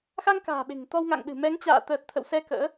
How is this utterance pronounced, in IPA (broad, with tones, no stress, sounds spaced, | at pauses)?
x a˧ ŋ k a̤ː˨˩ ɓ e̤˨˩ ŋ t̪ ɔ˧ w ŋ a̰˧˨ ŋ ɗ ɨ̤˨˩ m ɛ˨˦ ŋ t͡ɕ a̰ː˧˨ t̪ əː˨˩ t̚ t̪ʰ ə̰˧˨ w s ɛ˧ k ə̰ː˧˥